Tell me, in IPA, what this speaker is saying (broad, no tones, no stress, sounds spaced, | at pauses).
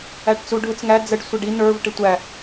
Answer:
æ ʈ t͡s u ɖʱ ʊ t͡s ŋ æ d͡z ə ɖ sʷ ɛ ɖ i n ə˞ v ʈ ɪ tʷ æ